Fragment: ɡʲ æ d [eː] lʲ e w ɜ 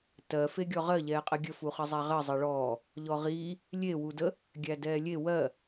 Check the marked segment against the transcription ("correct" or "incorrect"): incorrect